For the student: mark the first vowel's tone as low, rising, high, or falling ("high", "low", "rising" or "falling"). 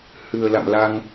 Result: low